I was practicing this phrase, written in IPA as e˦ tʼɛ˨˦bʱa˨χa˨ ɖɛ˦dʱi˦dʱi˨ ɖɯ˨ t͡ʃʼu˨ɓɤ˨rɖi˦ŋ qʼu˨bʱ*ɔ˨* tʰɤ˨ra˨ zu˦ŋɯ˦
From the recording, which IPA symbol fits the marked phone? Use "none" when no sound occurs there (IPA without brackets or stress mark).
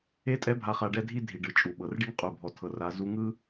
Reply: ɔ˨